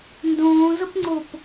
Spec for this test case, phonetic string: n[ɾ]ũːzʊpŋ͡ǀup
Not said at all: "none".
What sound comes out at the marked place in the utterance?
d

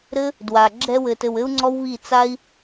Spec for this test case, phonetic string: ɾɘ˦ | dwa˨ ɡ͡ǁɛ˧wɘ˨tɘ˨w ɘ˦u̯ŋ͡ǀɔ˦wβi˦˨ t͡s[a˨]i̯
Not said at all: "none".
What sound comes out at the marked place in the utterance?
a˦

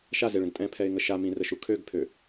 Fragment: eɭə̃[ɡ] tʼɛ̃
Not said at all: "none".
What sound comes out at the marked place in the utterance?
ɡ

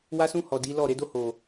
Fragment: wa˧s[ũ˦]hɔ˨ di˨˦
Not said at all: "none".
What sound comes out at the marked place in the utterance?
ũ˧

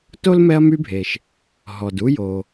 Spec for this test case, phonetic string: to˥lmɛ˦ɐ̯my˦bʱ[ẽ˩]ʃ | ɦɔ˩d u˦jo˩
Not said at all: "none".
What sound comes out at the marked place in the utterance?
e˩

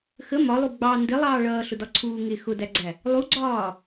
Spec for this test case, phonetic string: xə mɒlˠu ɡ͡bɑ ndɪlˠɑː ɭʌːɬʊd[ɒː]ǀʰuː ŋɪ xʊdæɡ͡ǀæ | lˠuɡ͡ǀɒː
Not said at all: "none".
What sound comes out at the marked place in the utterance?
ɒ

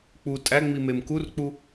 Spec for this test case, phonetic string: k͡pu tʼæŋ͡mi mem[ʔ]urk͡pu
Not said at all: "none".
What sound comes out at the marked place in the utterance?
k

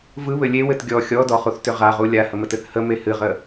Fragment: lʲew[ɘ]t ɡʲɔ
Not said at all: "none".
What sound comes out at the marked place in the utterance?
ɘ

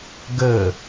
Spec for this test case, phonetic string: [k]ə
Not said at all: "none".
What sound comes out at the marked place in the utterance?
ɡ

